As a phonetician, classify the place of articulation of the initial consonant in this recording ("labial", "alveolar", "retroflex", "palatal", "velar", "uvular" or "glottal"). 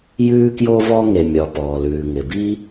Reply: palatal